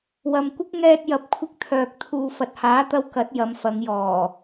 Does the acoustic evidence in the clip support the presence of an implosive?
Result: no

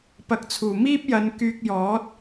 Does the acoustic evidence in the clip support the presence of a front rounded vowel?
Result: yes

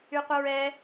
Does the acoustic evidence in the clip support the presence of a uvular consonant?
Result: yes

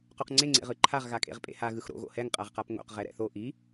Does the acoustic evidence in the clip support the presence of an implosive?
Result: no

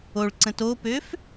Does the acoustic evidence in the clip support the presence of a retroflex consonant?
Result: yes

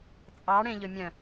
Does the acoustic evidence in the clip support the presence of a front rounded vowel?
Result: yes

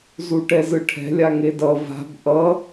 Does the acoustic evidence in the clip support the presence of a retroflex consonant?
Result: yes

